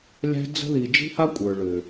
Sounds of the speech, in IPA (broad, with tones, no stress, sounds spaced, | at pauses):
lʲ æ̤˦ d͡z ə̤˦ ð i˨ d͡ʒ i̤˦ h a˦ kʷʼ ə˞˨ ɭ ʏ˨